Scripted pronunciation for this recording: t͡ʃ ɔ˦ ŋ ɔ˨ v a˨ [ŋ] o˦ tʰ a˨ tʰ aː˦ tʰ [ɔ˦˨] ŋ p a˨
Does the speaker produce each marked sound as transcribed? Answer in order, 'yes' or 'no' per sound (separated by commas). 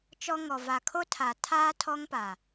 no, no